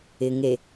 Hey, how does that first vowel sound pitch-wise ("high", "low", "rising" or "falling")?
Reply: low